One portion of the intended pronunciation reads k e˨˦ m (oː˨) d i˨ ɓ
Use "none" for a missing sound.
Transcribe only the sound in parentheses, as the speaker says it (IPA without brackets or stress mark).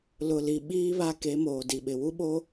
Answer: oː˨